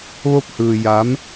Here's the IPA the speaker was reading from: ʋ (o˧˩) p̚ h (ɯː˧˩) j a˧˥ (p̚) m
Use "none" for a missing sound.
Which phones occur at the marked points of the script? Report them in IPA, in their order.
o˧, ɯː˩, none

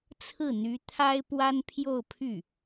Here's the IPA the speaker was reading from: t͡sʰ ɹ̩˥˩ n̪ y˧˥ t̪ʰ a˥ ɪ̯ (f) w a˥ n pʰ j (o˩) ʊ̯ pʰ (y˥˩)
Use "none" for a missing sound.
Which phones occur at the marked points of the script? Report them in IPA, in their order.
p, o˥˧, y˥˩

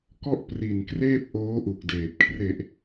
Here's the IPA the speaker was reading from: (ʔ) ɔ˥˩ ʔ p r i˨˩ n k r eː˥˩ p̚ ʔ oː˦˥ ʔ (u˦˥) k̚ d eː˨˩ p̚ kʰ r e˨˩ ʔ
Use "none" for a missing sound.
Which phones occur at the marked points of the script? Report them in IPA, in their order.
k, u˨˩

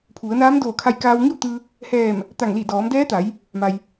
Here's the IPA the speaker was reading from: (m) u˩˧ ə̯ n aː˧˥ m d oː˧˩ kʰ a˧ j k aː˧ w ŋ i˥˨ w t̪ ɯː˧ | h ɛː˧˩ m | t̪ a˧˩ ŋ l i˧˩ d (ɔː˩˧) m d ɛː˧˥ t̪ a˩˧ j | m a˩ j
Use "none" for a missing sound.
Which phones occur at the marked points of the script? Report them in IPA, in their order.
pʰ, ɔː˩˧

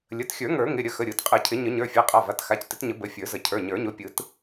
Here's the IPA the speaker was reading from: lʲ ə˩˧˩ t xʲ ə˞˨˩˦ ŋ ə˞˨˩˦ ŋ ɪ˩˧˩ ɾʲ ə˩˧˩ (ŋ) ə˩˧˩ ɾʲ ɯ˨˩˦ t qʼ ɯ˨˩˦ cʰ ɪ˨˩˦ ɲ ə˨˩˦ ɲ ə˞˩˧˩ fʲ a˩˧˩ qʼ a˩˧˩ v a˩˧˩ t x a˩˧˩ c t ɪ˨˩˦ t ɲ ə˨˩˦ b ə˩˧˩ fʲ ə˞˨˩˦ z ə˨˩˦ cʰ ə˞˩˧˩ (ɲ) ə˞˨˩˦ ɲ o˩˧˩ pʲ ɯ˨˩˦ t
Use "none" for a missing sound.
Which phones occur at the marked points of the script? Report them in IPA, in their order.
x, ɲ

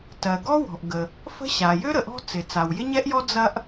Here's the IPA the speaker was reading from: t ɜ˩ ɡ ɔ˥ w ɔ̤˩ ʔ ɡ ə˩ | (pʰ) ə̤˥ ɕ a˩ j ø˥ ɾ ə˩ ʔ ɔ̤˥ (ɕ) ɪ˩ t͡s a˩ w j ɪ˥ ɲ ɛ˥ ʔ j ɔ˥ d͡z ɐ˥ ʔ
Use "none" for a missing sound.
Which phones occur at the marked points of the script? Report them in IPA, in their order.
f, t͡s

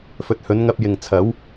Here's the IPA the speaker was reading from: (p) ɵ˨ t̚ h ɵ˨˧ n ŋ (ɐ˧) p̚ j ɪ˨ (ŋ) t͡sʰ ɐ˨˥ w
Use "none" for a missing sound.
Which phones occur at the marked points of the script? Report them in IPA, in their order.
f, ɐ˧, ŋ

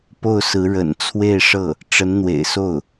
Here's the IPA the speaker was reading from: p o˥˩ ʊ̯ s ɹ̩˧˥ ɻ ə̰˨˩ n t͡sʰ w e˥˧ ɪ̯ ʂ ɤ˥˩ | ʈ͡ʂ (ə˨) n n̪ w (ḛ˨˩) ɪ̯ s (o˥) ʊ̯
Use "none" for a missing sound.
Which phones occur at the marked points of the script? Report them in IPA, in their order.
ə˧˥, ḛ˨˩, o˥˩

